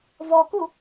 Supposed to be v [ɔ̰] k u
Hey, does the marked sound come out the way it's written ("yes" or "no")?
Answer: no